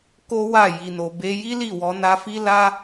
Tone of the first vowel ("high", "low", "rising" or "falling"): high